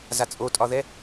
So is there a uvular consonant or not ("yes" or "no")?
no